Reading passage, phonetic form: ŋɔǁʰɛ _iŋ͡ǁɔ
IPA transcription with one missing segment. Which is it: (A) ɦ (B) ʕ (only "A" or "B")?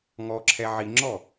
B